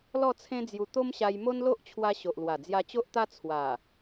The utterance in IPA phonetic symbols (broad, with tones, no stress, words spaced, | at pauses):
lɔ˥˧t͡sʰẽ˦ d͡zju˧ t̪o˦mɕa˧j mo˦nlo˦ʔt͡ɕʰwa˧ ɕo˨ʔlwa˨˩ d͡zja˧t͡ɕo˦ʔt̪a˦ t͡sʰwa˨˩